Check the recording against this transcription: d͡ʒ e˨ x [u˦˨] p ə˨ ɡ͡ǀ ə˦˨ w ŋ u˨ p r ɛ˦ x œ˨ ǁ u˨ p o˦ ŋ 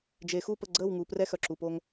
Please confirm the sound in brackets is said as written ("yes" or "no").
yes